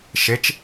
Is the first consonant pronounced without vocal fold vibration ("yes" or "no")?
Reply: yes